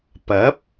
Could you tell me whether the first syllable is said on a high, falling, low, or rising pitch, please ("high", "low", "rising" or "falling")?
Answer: rising